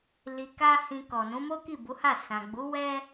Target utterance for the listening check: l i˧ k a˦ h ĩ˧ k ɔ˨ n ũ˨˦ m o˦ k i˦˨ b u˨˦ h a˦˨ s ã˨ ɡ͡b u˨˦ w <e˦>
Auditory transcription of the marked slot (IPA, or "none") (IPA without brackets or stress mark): ɛ˦